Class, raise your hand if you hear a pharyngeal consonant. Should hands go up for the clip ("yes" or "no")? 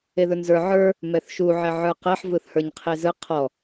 yes